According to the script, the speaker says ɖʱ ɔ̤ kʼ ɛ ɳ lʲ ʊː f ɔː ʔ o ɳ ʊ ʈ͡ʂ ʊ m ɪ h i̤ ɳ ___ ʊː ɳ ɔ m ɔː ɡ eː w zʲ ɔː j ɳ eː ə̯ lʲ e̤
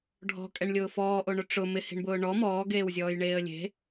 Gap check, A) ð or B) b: B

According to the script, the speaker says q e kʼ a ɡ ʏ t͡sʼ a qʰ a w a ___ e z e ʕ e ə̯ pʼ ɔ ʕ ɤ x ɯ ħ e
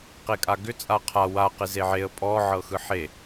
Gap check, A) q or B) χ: A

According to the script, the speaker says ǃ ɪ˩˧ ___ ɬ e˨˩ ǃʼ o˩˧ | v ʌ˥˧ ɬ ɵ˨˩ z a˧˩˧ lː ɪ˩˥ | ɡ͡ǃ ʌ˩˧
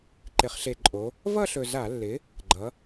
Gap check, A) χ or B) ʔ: A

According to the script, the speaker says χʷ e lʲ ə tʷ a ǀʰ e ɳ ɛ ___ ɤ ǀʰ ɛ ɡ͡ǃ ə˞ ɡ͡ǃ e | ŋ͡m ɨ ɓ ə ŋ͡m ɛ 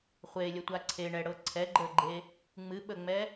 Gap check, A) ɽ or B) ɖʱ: A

